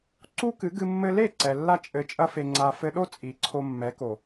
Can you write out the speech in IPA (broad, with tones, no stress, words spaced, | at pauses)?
ǀu˦kɨ˨˦ɡɨ˧ mːɘ˧le˦˨ ǀɛ˨lːa˦ t͡ʃʼɘ˧t͡ʃʼɐ˦fe˧ŋ͡ǀa˧ fɘ˧ɗo˦ t͡sʼi˨˦ǀʰo˧mːɛ˨˦ko˨